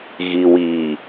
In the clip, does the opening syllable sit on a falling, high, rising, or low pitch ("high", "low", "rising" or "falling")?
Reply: low